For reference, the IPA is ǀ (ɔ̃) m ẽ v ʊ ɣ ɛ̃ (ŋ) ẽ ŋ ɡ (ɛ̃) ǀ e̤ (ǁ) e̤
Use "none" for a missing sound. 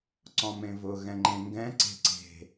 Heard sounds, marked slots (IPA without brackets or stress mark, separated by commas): ɔ̃, ŋ͡ǃ, ɛ̃, ǀ